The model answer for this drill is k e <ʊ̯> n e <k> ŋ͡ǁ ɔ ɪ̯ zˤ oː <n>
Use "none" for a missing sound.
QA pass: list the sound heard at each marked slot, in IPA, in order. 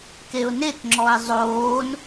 ʊ̯, k, n

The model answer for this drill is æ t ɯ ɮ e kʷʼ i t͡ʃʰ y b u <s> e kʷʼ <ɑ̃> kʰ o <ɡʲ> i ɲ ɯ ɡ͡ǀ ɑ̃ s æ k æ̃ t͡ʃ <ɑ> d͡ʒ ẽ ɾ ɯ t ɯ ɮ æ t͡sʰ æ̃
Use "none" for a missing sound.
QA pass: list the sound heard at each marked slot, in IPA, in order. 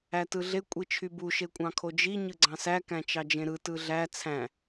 ʃ, ɑ̃, d͡ʒ, ɑ

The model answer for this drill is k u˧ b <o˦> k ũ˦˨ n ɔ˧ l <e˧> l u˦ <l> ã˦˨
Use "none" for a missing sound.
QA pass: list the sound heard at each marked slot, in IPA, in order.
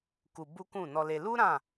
u˦, e˧, ɾ

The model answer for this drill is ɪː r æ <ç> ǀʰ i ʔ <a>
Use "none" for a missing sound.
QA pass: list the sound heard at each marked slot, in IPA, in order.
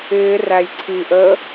j, ə

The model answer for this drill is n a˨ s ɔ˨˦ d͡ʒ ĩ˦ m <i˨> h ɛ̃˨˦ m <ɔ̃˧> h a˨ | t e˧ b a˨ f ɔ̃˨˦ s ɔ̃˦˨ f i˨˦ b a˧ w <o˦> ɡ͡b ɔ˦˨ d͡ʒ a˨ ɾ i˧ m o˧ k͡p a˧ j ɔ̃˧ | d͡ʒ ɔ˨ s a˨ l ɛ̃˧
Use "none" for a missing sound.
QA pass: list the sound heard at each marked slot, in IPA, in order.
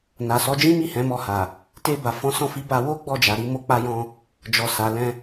i˦˨, ɔ˧, o˦

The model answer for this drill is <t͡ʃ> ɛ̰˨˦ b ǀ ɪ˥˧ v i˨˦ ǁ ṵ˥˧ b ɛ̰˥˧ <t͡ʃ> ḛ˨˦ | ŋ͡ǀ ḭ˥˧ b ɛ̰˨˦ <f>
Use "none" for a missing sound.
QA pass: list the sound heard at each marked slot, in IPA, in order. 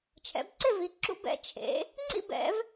t͡ʃʰ, t͡ʃʰ, v

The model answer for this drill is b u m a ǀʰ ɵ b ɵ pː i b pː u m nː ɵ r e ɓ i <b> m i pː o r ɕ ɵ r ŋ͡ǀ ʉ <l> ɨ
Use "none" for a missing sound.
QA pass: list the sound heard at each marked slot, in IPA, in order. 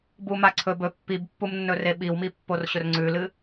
w, l

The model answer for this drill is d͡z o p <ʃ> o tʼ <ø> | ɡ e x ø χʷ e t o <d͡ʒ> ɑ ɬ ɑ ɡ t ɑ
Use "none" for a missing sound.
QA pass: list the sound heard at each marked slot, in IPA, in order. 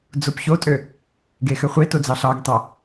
ç, ø, d͡z

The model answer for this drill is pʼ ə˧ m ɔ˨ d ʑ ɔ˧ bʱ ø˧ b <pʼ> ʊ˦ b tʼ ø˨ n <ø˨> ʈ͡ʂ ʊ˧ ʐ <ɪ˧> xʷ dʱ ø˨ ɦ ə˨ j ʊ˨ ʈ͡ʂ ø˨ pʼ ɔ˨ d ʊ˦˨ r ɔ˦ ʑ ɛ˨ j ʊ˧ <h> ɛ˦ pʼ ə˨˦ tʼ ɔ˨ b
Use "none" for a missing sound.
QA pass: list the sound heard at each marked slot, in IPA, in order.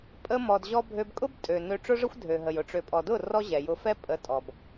kʼ, ø˨, ə˧, f

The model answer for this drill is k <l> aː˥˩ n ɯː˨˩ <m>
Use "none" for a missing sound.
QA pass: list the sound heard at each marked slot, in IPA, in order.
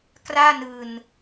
r, n

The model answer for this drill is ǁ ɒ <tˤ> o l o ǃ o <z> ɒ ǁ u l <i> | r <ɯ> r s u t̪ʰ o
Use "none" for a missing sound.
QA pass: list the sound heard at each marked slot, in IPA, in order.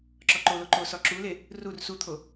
ǃ, s, e, u

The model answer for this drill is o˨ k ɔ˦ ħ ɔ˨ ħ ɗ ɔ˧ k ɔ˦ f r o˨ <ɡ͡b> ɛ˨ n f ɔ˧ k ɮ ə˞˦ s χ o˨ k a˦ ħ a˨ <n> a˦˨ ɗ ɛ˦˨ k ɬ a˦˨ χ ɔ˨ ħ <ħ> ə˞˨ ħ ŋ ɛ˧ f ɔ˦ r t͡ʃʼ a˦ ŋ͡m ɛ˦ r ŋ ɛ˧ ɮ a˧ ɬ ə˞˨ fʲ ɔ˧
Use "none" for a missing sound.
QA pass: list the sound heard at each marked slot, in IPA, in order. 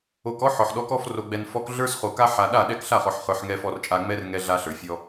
ɡ͡b, ɗ, χ

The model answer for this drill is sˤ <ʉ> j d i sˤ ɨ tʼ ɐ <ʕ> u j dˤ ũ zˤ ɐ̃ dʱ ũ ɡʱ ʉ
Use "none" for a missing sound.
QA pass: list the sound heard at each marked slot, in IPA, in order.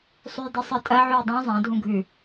ʉ, ʕ

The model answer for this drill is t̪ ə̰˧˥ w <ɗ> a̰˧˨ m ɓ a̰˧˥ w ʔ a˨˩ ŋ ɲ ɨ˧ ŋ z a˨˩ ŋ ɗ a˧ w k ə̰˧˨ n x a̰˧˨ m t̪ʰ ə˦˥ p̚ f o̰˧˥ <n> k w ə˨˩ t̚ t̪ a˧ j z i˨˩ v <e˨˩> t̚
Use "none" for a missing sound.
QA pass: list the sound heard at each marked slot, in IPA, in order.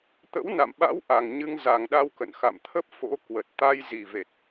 n, none, e˨˩

